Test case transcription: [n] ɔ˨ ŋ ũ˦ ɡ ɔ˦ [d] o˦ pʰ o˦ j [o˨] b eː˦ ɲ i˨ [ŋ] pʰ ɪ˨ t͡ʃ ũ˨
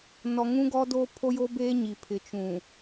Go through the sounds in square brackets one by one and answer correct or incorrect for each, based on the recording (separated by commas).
correct, correct, incorrect, incorrect